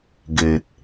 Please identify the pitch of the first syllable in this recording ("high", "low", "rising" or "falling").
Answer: low